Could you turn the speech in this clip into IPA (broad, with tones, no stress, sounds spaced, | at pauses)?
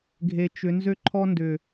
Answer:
ɡʱ e˨ t͡ʃ ʏ˨˦ n z ø˦ ǃʰ ɔ˦ n d ʏ˨